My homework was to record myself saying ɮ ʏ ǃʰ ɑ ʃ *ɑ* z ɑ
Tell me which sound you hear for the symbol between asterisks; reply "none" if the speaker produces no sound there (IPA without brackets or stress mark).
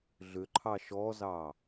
ɔ